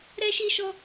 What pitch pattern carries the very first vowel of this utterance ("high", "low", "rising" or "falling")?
high